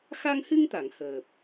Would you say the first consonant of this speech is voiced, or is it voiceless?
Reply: voiceless